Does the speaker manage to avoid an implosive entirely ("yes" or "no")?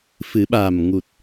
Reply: no